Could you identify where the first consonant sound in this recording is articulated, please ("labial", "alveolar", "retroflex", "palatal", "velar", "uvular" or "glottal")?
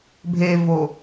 labial